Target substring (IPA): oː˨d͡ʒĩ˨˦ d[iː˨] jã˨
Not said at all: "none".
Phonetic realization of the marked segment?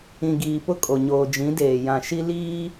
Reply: eː˨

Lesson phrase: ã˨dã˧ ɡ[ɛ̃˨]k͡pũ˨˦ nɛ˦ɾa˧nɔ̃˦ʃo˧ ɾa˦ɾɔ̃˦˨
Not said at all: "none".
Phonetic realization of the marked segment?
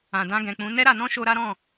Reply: ɛ̃˨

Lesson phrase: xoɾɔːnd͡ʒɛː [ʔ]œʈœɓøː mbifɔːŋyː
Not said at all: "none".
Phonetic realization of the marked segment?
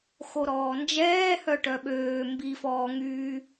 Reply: h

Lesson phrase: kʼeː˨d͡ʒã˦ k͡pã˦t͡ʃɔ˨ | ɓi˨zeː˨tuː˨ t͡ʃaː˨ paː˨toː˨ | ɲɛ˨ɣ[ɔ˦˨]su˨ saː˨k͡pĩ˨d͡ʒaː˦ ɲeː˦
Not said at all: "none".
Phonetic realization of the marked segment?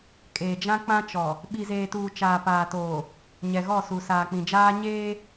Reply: ɔ˦˨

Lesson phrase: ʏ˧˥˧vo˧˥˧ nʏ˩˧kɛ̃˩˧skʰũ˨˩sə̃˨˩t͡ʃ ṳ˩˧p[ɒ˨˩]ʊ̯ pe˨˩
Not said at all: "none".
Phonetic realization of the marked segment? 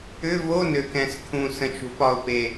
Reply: ɒ˨˩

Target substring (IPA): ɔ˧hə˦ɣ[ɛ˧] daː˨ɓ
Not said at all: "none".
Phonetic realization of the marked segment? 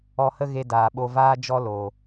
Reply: e˧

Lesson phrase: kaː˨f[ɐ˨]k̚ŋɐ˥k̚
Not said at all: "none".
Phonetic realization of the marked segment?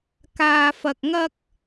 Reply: ɐ˨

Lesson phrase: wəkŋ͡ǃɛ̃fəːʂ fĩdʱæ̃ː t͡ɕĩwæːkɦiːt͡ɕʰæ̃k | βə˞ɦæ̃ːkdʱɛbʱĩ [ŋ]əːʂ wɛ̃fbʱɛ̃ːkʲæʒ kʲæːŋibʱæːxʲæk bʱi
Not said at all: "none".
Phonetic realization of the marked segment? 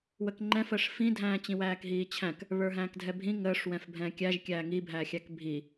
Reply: ŋ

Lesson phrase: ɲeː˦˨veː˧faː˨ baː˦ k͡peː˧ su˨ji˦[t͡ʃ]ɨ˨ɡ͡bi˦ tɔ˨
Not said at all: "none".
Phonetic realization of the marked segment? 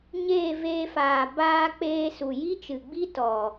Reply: t͡ʃ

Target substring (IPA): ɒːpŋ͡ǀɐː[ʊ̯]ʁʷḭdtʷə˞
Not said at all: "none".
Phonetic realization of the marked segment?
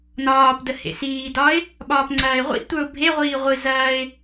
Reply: ɪ̯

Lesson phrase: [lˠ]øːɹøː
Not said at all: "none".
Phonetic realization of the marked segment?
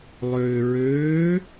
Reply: lˠ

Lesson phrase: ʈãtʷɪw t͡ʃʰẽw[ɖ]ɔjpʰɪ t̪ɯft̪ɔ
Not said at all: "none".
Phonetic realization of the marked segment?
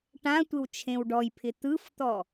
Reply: ɖ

